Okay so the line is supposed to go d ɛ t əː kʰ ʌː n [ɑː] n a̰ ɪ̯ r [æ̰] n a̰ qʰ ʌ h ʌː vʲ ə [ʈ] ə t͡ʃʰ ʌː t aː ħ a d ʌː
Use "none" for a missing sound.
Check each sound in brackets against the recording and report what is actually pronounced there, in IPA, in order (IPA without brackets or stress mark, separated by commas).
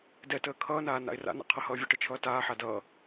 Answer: aː, a̰, ʈ